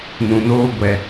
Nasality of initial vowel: nasal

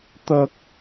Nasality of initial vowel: oral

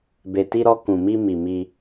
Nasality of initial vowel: oral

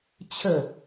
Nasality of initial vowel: oral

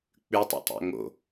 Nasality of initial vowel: oral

